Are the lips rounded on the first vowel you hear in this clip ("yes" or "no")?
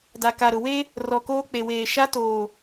no